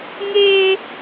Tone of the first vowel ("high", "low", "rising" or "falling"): high